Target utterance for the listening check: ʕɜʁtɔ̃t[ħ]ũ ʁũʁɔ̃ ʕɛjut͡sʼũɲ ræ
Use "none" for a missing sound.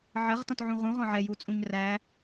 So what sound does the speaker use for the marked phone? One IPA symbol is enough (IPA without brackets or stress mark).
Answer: ʕ